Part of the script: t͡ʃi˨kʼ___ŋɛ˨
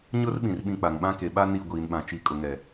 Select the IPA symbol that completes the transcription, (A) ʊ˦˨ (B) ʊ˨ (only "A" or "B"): B